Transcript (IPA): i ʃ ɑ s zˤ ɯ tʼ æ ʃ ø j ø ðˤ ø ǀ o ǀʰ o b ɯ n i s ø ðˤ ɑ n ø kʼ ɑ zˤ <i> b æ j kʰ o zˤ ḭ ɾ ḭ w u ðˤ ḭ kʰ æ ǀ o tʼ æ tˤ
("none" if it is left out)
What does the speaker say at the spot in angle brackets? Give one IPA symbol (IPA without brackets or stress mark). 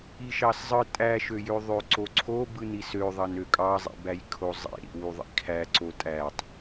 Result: ḭ